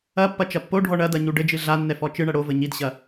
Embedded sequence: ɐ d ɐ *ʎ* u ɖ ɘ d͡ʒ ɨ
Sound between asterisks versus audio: incorrect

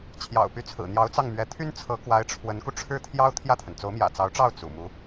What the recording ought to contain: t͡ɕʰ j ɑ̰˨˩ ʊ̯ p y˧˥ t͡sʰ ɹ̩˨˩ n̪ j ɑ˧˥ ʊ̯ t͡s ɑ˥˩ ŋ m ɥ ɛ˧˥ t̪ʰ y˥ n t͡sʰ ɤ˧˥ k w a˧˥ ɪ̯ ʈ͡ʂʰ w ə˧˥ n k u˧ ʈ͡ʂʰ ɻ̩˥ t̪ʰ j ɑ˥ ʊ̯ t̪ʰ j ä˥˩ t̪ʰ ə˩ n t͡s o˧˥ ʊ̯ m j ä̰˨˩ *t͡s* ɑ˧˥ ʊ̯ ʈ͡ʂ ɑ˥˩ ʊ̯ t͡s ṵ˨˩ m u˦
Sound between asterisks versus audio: correct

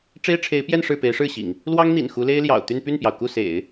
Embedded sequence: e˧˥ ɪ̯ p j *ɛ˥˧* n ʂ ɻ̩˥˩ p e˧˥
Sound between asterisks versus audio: correct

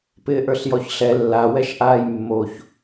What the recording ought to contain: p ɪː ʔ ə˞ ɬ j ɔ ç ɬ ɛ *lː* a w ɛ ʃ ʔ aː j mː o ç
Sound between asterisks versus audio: correct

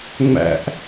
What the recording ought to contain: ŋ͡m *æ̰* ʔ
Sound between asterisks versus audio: correct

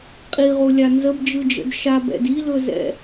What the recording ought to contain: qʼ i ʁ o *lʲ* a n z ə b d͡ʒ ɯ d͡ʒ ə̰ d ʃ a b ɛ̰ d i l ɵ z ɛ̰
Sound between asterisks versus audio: correct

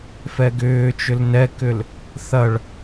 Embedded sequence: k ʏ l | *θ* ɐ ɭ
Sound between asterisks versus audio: correct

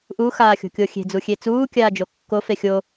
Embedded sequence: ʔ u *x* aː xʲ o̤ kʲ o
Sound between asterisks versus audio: correct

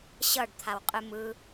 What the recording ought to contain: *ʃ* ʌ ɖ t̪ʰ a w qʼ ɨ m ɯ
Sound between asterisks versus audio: incorrect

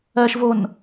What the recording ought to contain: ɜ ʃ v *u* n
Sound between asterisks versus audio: incorrect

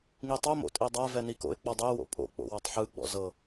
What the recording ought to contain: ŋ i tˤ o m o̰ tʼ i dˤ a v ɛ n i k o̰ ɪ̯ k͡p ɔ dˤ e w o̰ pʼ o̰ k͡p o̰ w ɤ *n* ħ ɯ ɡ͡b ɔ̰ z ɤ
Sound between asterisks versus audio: incorrect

